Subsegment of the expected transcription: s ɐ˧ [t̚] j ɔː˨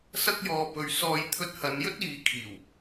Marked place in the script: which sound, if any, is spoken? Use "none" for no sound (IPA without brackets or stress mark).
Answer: k̚